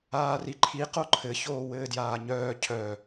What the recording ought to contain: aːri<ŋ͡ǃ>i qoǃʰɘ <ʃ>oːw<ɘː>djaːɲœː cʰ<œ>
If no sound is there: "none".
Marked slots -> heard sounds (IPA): ǃʰ, ç, ɘː, œ

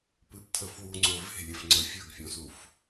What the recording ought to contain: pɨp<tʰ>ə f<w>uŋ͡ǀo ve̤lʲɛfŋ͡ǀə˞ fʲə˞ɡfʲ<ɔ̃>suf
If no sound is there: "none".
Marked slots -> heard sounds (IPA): tʰ, w, ɔ̃

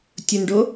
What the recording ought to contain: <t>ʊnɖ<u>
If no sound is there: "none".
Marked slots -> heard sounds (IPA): tʲ, o

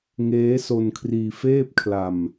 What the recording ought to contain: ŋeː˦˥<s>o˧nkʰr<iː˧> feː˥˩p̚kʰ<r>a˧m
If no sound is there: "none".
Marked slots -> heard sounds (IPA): s, iː˧, l

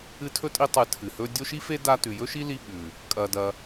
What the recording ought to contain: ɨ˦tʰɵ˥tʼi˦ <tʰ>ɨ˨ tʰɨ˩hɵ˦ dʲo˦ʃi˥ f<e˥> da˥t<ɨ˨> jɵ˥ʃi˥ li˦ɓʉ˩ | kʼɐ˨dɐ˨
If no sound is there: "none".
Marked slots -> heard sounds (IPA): tˤ, e˥, ʉ˨

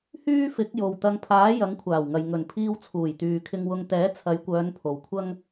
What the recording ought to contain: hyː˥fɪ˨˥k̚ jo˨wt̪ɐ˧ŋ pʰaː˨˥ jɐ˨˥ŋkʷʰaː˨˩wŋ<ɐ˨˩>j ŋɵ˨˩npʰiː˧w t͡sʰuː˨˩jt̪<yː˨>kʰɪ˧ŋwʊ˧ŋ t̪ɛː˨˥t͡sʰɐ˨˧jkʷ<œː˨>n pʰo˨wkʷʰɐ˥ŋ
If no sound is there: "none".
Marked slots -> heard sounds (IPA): ɐ˨, yː˨, œː˨˧

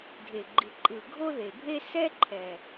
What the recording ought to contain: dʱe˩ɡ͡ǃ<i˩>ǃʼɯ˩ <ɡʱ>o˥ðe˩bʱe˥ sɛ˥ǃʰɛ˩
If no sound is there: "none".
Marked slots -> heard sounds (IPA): i˩, ɡʱ

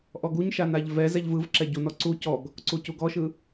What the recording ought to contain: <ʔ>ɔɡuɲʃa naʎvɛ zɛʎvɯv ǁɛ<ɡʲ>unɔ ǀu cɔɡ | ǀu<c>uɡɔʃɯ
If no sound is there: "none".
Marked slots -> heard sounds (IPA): ʔ, ɟ, c

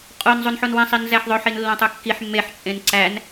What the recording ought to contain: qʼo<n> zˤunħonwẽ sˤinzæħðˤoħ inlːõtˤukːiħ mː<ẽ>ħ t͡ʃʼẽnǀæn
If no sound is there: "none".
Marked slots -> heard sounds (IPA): n, e

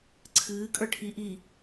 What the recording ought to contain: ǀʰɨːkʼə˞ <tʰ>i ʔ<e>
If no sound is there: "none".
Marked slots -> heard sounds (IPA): ʈʰ, i

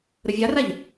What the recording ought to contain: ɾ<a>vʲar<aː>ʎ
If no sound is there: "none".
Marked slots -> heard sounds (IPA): ə, a

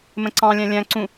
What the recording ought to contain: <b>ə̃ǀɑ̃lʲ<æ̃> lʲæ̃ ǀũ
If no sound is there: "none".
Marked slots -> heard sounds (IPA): m, æ̃

